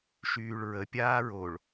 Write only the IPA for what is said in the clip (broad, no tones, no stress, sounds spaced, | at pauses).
ʃ yː ɭ ɹ ə pʲ aː ɹ o ɭ